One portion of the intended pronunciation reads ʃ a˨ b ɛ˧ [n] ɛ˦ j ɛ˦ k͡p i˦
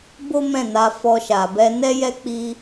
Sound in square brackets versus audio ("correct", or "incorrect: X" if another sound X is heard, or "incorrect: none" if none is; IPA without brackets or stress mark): correct